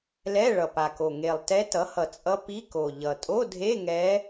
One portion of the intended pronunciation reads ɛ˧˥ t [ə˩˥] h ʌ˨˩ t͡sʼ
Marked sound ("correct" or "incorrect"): incorrect